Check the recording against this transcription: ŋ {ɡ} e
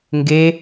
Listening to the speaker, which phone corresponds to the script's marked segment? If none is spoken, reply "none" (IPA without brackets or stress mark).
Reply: ɡ